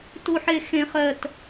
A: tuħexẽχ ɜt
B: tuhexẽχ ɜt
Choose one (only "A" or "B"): A